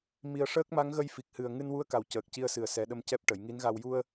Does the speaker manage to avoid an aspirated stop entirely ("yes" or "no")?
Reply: yes